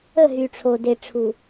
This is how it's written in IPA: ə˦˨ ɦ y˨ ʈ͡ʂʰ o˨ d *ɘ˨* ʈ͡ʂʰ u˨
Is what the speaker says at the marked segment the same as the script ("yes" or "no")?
no